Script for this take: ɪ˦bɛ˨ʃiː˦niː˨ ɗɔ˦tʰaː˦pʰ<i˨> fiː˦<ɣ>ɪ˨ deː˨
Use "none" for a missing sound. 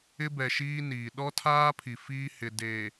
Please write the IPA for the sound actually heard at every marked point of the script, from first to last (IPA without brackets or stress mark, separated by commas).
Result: i˨, h